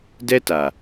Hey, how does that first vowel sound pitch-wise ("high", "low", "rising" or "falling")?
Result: high